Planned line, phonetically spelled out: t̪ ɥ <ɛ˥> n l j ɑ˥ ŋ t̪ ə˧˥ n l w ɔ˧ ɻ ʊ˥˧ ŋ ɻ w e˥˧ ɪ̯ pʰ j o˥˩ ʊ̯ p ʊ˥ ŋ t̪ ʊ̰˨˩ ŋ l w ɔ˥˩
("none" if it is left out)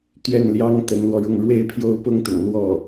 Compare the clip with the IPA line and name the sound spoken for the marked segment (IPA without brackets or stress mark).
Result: ɛ˥˩